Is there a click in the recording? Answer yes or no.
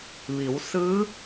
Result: no